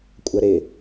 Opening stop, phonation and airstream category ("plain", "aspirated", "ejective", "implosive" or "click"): ejective